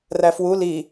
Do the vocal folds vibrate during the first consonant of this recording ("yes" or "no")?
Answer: yes